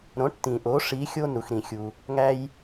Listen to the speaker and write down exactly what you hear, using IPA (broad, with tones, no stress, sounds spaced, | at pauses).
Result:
ɾ õ˩˥ ʈ t ĩ˩ ʔ o˩˥ ʂ i˩˥ xʲ o˧ n u˩ x ɾ ĩ˩ xʲ u˩ | ŋ æ˧ j